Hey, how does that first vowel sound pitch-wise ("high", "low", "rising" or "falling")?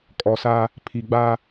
low